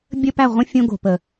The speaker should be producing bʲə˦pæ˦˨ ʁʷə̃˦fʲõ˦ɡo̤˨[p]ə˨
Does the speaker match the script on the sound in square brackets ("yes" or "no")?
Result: yes